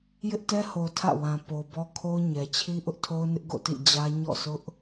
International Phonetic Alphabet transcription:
j ɪ˦ ʔ t ɛ˦ h o˨ tʰ ä̰˦˨ w ã˨ p o˨ b ɔ˦ kʰ o˦ ʊ̯ ɲ ɛ˨ t͡ɕʰ i˦ ʔ ʊ˦ ʔ tʰ o˦ ʊ̯ n ɪ˦ ʔ ɡ o̰˦˨ t ḭ˦˨ d͡ʑ ä˦ ɲ ɔ̰˦˨ s ʊ˦ ʔ

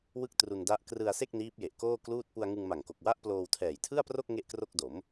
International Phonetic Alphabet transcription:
w ɯ˥˩ k̚ t r u˧ n d a˦˥ ʔ k r ɯ˧ a̯ s e˥˩ k̚ n iː˦˥ p̚ j e˨˩ ʔ k oː˥˩ k l uː˥˩ t̚ p u˧ a̯ ŋ ɯ˧ ŋ m a˨˩ ŋ k o˨˩ k̚ w a˦˥ ʔ p l oː˧ w tʰ ɛː˨˩ j tʰ ɯ˥˩ a̯ p r o˥˩ k̚ ŋ e˥˩ ʔ k r o˥˩ k̚ d o˩˦ m

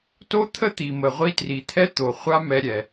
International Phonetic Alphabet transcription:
t o˦ t̪ʰ ə˦ t̪ i˨ m ə˨ ʁʷ i˧ t r i˨ t̪ʰ ɛ˦ t̪ o˨ χʷ a˦ m ɛ˧ ɾʲ ɛ˨

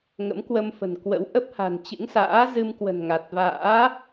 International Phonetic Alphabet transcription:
ŋ ə̰˧˥ m k w ə˧ m f ə̤˨˩ n k w ə̰˧˥ w ʔ ə˦˥ p̚ h a̤˨˩ n t͡ɕ ɨ̰˧˥ ŋ s a̰ː˧˥ z ɨ˧ m k w ə̤˨˩ n ŋ a˨˩ t̚ v a̰ː˧˥

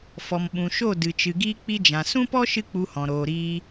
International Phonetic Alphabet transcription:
f ɔ˨ m ɓ ũ˨ ʃ o˦˨ d ɨ˨ t͡ʃ ɨ˨ ɡ iː˧ k͡p i˧ d͡ʒ ã˨ s ũ˦ p ɔ˦ ʃ ɨ˦ k͡p u˧ h ɔ̃˨ ɾ oː˨ ɾ iː˧

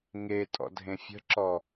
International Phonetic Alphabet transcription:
ŋ e tʼ ɔ̰ dʱ ẽ fʲ ə̤ ǁ ɔ

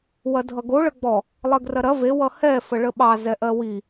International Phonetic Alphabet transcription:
w ɐ dʱ ʌ ɡ o ɭ ə ɡ͡b ɔ | lˠ ɜ ɡ r ɐ ɾ ɐ v e w ʌ h ɛ f ə ɭ ə ɓ ɑ z ɛ ʔ ɜ w i

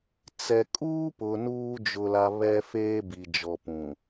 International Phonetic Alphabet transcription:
t͡s ɛ˨ kʼ uː˦ p ʊ˨ n uː˦ d͡ʒ ʊ˨ l a˨ β ɛ˦ f eː˦ b i˨ d͡ʒ ɔ˨ p ũ˨

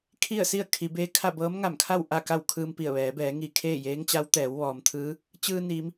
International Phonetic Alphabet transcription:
kʰ i˥˨ ə̯ s i˥˨ ə̯ kʰ i˩˧ b eː˧˥ kʰ a˥˨ b ɤː˧˥ m ŋ a˧˩ m kʰ a˥˨ w ʔ a˥˨ k a˥˨ w kʰ ɯː˧ m p i˧˩ ə̯ ʋ ɛː˩˧ b ɛː˩˧ ŋ i˧˩ kʰ eː˥˨ j eː˧˥ ŋ t͡ɕ a˧˥ w t̪ ɛː˩˧ w ʋ ɔː˩ m t̪ʰ ɯː˧˥ | t͡ɕ ɯː˧ n i˩˧ m

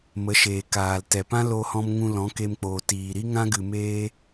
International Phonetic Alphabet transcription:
m ə˨˦ ʃ eː˨ k aː˨ l t ɛ˨ p ã˦ l o˧ h ɔ̃˧ m ŋ ũ˧ l ɔ̃˨˦ k e˧ m k͡p oː˨ t iː˨ ɾ i˦ ŋ ã˦ ɡ ɨ˨ m eː˧

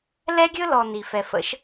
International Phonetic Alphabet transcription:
l ɛ˦ ɡʲ ɵ˦ l ɔ˨ n i˨ f ɛ˨ f ə̰˧ ʃ

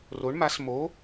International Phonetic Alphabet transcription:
r o˧˥ ɳ m a˧˥ s m o˧˥

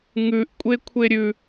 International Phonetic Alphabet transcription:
ŋ ʉ ʔ kʷʼ e kʷʰ e ɾʲ ʉ

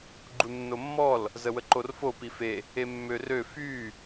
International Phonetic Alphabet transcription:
ɡ͡ǃ u nː o mː ɔ l | z ə w ə ǃ o r f o p i f e | e mː ø r ø f y

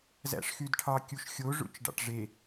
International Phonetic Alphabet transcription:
z æ̰ ʂ x y d ʈʰ ɑ kʲ u ʃ xʲ o ʐ ṵ t͡ʃ ɖ ɑ̰ ʈ ʐ e

